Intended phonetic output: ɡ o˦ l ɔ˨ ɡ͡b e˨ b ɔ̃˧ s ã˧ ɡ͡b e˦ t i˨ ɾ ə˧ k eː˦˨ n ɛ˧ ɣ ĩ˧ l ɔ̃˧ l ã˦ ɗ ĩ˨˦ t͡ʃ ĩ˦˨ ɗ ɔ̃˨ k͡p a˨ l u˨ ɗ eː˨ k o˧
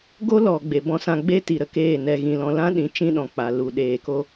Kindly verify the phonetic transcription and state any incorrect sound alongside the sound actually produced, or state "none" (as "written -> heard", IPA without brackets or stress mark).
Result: none